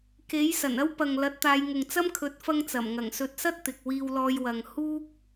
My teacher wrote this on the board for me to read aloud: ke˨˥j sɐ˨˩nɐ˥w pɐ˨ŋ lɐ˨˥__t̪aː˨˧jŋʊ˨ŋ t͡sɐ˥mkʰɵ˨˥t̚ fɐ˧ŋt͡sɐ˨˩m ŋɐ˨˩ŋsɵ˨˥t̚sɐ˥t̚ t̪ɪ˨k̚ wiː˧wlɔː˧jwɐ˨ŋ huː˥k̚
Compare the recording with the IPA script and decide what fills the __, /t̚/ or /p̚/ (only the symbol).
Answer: t̚